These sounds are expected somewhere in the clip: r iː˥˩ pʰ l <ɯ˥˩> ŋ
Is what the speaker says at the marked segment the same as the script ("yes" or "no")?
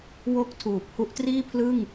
yes